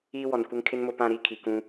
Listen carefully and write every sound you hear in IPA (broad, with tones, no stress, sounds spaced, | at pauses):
iː˦ w ɔ˨ n kʷ ɪ˦ ŋ kʰ ɪ˦ n m ʊ˦˨ p ã˦˨ ɾ i˦ kʰ i˨ k ũ˦